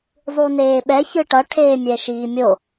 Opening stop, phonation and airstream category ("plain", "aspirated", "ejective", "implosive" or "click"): implosive